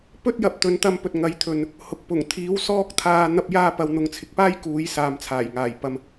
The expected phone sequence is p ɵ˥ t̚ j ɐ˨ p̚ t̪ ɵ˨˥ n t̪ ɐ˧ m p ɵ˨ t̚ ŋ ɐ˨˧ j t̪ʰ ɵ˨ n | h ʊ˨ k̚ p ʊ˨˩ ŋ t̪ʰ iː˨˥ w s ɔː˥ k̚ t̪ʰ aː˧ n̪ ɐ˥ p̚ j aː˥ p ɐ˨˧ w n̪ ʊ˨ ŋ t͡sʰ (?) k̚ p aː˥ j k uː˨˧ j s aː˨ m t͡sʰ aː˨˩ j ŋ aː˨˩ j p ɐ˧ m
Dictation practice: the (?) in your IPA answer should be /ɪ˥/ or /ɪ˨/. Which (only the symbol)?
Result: ɪ˨